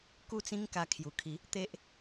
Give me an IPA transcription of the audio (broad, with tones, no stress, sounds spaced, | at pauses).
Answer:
k u˥˧ t͡s ĩ˦ ŋ k a˧ kʰ j u˨˩ kʰ i˨˦ | t̪ e˦ ʔ